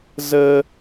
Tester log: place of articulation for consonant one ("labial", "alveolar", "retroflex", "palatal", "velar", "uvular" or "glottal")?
alveolar